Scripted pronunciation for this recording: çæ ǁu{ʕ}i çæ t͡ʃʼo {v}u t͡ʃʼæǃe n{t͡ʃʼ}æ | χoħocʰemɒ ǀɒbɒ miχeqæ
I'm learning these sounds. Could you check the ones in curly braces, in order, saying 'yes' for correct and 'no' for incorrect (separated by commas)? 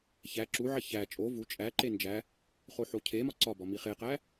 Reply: yes, yes, no